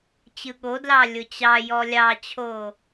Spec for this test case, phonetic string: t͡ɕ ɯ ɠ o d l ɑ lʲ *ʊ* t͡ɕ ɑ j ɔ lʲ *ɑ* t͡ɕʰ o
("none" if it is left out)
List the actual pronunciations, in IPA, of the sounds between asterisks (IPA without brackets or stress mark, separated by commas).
ʊ, ɑ